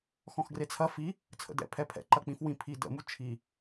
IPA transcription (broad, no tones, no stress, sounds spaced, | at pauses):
x ɔ̃ x ɡ r e t͡sʰ ɐ f i | t͡sʰ ə̰ d ɛ̰ pʰ ɛ pʰ ɛ̰ ǃ ɐ k͡p ĩ f w ĩ pʰ i d ə̰ m u t͡ʃʰ i